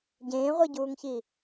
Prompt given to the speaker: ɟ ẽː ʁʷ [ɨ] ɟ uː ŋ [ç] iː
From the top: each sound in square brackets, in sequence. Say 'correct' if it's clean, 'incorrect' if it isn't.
incorrect, correct

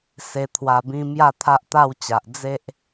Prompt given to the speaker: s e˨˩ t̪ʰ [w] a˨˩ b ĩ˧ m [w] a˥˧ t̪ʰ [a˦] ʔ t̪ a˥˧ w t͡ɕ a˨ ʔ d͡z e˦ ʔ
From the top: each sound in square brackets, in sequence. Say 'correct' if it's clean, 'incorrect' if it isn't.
correct, incorrect, correct

